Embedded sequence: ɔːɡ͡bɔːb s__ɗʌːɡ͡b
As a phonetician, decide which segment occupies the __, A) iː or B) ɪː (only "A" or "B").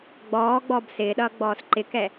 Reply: B